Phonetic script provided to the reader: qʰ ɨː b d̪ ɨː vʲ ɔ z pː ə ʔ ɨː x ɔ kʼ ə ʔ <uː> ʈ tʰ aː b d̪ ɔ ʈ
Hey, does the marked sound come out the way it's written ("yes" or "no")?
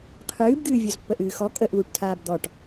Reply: yes